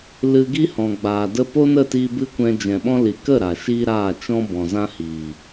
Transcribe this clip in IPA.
l ɨ˧ ɡ i˦ h ɔ̃˨ ɡ͡b aː˨ d ə˧ p o˦ n ə˦˨ t iː˧ b ɨ˦ kʷ ɛ̃˧ d͡ʒ ɛ̃˨ ɓ ɔ̃˧ l i˨ k ə˦˨ ɾ a˨ ʃ iː˦ ɾ aː˦˨ t͡ʃ ɔ̃˦ b ɔ̃˨ z ã˦ h iː˨

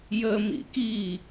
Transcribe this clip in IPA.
j ə m ḭ k i

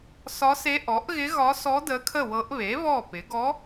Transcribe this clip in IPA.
s ɒ˧˥ s e˧˥ ʔ ɔ˩˥ ʔ ɣ ɪ˧˥ ɣ ɒ˧˥ s ɔ˧˥ d ə˧˥ kʰ ə˥˩ w ɤ˧˥ ʔ β e˩˥ β ɔ˥˩ p ɪ˩˥ ɡ ɔ˧˥

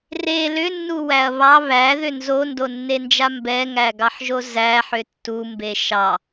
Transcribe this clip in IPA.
r e l ʏ nː u w æ ɐ̯ β ɑ β æ ð ʏ n z o n d o nː e n d͡ʒ a m b ɛ ŋ æ ɡ ɑ ħ ʒ o z æ ħ ʏ tː u m b e ʃ ɑ

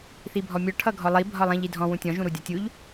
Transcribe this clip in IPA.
θ i bʱ ɔ mʲ ɔ ʈʰ ʌ ɡʱ ɔ lˠ i bʱ ɒ lˠ ĩ ʎ i dʱ ɔ̃ w ũ tʲ ɔ̃ ʒ ũ ɾ u dʲ ɒ tʲ u ʎ

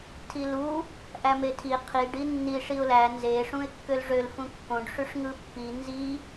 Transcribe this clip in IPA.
tʰ i l u | ʔ æ m e tʰ i qʰ i ɖ i nː i ʂ i ʊ̯ l æ n z e ʂ ũ ɪ̯ kː ø l ʐ ø l f ũ kː õ ɖ ʂ y ʂ ŋ ɯ pː i n z i

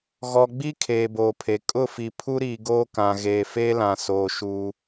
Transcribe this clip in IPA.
ɣ ɔ˨ ɡ͡b i˦ kʰ eː˨ b oː˨ pʰ e˨ kʼ ʊ˦˨ f i˨ pʰ u˦ ɾ iː˨ ɡ oː˦ k ã˨ ɣ eː˨ f eː˦ l ã˨ s oː˨ ʃ u˦

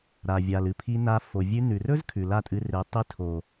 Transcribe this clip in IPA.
ɾ a˨ vʲ a˨ l ɨ˨ pʰ i˧ n a˧ f o˨ vʲ ʉ˧ n ʉ˨ r ɵ˦ z kʰ ʉ˨ l a˦˨ tʼ ɨ˧ r e˨˦ tˤ i˧ tʰ o˨

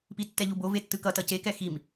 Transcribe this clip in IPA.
p i tː ɛ ʎ u b o v e tː ɯ k ʌ t ʌ c e k ɛ x i m

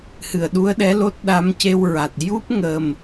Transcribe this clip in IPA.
h ɨ˨˩˨ ə̯ ɗ u˧˥ ə̯ ɗ ɛ˧˥ l o˦˥ t̚ ɗ a˧˥ m c e˧ w ɹ a˨˩ t̚ j u˦˥ p̚ ŋ ə˨˩ m

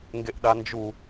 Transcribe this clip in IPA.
ŋ ɡ e ʔ ɗ a n d͡ʒ u

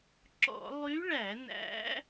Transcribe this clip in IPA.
ǁ ɔ̰˧˩˧ lˠ y˧˥ ɭ æ˧˩˧ n æ̰˧˥

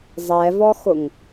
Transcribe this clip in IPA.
zˤ ɛ v ɔ x ʊ ŋ

